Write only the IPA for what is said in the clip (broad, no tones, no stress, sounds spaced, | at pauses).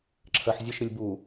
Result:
ǁʰ ɜ ħ zʲ ə ʃ ɾ ɨ lʲ b u